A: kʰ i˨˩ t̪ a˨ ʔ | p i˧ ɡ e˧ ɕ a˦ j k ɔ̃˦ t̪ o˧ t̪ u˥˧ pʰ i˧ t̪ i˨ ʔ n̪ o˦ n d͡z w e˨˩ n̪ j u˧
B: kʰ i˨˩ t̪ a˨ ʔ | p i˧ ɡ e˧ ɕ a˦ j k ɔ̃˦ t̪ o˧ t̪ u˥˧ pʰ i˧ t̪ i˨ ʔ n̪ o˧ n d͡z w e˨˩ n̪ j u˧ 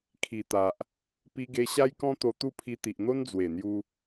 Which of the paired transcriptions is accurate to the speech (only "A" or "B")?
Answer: A